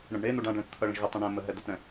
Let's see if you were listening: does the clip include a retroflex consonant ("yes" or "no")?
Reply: yes